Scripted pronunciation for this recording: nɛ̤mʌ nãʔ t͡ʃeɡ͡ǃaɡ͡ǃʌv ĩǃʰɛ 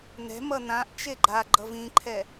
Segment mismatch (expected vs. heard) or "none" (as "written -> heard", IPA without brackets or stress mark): none